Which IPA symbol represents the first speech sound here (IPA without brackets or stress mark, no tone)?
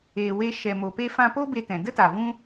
eː